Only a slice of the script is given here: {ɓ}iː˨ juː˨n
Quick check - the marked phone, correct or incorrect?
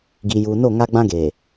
incorrect